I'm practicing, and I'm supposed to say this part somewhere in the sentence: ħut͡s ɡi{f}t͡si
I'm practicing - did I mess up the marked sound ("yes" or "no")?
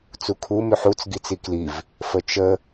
yes